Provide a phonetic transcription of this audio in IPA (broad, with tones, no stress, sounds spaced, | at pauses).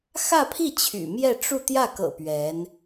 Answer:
x ä˥˧ pʰ i˥˩ t͡ɕʰ y̰˨˩ m j ɛ˥˧ ʈ͡ʂ u˥˧ t̪ j ä˥˩ k ɤ̰˨˩ p ɥ ɛ˧˥ n